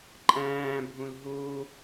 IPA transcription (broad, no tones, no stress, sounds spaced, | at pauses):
ǃʼ æ̃ː bʱ ũ l ɦ u